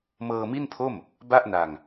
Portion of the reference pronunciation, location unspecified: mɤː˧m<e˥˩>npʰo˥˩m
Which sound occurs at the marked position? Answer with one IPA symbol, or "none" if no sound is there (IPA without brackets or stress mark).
i˥˩